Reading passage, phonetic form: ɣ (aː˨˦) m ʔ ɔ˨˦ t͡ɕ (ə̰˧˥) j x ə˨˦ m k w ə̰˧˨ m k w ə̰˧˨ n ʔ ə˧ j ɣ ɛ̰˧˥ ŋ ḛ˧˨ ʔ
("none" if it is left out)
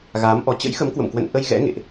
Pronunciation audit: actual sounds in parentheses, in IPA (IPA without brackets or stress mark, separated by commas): aː˨˦, ə̰˧˥